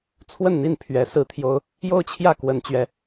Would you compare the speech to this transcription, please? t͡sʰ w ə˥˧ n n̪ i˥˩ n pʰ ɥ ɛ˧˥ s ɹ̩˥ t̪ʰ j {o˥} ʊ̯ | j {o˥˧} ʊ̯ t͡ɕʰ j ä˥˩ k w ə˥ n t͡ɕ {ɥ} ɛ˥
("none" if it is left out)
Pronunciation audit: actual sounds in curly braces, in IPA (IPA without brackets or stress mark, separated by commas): o˥, o˥˧, ɥ